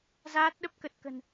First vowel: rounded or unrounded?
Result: unrounded